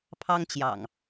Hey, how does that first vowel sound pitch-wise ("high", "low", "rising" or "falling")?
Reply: high